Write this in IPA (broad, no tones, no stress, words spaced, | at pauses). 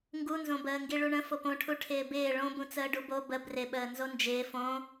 ŋɡunzõbəː ŋɡiɭuɳə̃ fopõʈʰu ʈʰɪːbɪː ɭõ bũt͡səːɖubo bə brɪɓəː nzond͡ʒɪː fõ